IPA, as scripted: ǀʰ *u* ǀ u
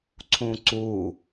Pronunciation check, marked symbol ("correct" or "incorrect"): incorrect